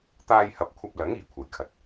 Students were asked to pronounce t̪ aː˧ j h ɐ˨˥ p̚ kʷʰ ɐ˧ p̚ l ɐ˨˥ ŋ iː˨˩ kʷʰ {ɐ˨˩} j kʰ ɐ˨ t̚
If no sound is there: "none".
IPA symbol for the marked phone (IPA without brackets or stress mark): ɐ˨˩